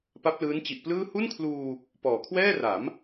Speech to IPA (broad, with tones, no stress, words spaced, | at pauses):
pa˦˥p̚ lɯː˦˥nt͡ɕi˨˩ʔplɯː˥˩ hu˥˩nkʰluː˧ | pɔː˨˩kʰwɛː˥˩ra˩˦m